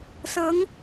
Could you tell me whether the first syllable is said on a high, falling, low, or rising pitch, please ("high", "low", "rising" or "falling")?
rising